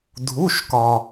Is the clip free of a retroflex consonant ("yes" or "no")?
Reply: yes